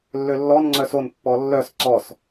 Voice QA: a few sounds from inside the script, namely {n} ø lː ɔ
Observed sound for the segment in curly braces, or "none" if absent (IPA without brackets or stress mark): lː